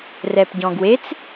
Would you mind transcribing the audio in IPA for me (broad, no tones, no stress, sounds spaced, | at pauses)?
r ɛ p ɟ ɔ̃ ɡ w e t͡s